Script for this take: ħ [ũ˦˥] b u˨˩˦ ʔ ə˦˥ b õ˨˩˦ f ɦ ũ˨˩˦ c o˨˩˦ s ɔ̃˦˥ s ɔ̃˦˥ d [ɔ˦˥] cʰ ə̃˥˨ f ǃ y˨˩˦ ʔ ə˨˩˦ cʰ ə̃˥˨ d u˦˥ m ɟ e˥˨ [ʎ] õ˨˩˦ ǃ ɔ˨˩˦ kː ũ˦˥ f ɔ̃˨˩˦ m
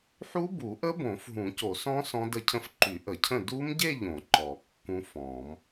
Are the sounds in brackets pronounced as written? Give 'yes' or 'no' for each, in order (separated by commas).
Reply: no, no, yes